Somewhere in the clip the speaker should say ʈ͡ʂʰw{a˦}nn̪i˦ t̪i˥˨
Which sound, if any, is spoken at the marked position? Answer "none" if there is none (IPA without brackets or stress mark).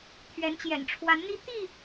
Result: a˨˦